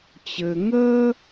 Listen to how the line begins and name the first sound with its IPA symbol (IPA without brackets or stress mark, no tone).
t͡ɕ